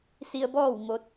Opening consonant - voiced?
no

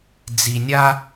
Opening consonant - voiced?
yes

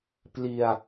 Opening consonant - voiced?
no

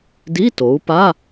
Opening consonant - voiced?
yes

